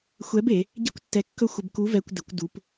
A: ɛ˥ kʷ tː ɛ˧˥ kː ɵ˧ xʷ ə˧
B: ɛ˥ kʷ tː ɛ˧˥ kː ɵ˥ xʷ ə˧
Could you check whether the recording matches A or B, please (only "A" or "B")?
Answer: B